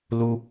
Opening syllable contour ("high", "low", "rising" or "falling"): high